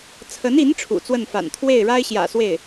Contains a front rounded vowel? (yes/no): no